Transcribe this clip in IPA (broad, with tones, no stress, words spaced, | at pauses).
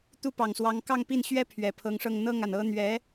t̪u˥˩pɑ˨˩ŋswɑ˧˥ŋ kɑ˥˧ŋpi˥˩nɕɥɛ˥ pʰɥɛ˨˩pʰɤ˧˥ŋʂɤ˥˧ŋ n̪ɤ˥˩ŋa˩n ɤ˥ n̪ɥɛ˧˥